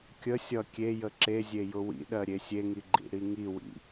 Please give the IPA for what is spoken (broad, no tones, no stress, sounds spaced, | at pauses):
kʲ ə sʲ ʌ kʲ e j ə ǁ e zʲ e j ʊ w ḭ ɗ ɜ ɾʲ e sʲ e ŋ i ɡ͡ǃ ḭ ɽ i ŋ i w ḭ